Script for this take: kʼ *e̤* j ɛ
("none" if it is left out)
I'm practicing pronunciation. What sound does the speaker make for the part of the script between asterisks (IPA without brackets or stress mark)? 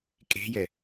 e̤